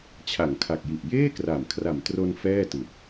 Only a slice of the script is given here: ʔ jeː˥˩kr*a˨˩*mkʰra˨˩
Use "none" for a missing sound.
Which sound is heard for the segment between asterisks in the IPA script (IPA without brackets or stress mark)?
a˨˩